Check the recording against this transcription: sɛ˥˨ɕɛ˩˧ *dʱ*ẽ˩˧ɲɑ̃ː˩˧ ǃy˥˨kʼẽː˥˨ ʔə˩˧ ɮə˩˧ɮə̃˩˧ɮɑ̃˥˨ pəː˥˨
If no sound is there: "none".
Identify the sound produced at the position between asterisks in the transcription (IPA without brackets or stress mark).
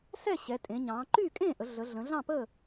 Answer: tʼ